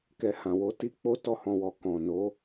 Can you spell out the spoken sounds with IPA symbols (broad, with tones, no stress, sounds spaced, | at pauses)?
k ɛ˧ h ã˨ w o˨˦ t i˦ k͡p o˦ t ɔ˦˨ h ɔ̃˧ w ɔ˨ k ɔ̃˨ n o˨˦